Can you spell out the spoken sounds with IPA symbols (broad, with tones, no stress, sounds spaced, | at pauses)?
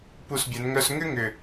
p u˦˨ s bʲ ɛ˨˦ n ŋ œ˥ s ŋ ʏ˥ ŋ ʏ˨˩